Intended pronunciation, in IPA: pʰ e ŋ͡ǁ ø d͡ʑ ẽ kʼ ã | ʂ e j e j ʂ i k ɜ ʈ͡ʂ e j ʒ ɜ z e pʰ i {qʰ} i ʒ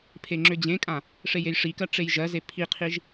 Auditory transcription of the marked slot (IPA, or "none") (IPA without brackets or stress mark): qʰ